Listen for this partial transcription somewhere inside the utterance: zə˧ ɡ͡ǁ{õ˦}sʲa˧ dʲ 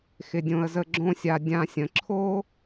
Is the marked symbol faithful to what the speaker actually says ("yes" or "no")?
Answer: yes